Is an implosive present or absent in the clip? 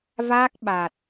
present